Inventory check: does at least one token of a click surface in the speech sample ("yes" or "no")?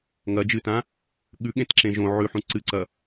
yes